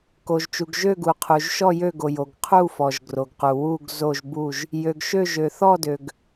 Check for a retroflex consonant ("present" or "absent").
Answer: absent